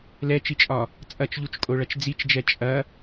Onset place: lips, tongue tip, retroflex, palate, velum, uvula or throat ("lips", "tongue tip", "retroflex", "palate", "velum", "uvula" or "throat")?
tongue tip